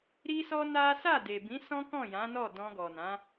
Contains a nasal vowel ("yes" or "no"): yes